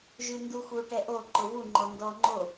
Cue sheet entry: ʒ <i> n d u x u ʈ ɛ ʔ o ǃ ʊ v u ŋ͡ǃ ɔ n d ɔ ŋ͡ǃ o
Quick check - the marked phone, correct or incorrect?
incorrect